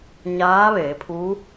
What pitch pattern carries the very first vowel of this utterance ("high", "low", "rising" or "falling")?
rising